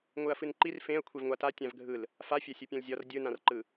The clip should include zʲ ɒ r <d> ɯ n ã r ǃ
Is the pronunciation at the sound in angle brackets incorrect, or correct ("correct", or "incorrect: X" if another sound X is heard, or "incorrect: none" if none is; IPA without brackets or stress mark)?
incorrect: dʲ